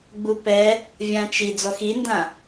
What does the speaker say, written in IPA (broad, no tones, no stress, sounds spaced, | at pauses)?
ɡ͡b u p ɛ | vʲ ã t͡ʃ i d͡z ɔ x i n d ã